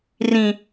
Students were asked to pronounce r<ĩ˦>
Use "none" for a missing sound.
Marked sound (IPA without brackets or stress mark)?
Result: ĩ˦